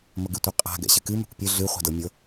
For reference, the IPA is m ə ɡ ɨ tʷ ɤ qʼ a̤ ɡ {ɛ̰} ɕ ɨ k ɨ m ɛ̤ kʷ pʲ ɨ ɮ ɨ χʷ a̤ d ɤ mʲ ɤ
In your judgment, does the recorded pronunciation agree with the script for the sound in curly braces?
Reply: yes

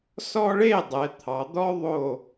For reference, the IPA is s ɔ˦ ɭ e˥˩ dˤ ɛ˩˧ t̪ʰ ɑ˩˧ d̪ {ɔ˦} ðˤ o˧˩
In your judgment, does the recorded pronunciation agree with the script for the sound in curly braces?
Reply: yes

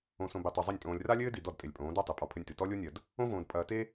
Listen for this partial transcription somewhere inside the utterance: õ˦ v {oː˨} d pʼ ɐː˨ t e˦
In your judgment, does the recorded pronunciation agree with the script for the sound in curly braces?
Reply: no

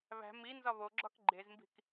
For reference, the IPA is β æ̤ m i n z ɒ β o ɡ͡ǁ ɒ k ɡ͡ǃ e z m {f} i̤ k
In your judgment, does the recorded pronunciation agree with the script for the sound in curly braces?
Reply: no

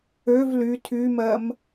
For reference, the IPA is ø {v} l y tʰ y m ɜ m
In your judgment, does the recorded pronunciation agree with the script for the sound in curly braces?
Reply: yes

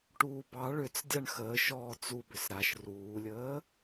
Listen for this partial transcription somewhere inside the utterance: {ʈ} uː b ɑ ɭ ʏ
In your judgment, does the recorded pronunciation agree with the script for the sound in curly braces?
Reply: yes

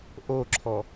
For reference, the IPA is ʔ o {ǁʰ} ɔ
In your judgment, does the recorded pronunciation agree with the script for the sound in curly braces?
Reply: yes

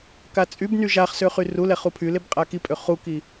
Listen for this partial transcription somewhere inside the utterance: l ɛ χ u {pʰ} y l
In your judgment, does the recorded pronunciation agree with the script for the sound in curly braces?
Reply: yes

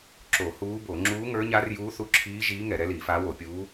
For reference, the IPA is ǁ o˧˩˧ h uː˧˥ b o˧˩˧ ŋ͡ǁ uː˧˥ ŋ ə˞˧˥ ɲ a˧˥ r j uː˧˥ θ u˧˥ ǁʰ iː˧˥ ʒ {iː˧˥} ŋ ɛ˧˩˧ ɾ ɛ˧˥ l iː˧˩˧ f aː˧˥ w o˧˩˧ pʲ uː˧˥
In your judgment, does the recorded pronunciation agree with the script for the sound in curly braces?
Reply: yes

